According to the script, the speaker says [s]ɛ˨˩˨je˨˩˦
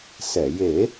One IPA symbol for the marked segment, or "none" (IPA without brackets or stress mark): s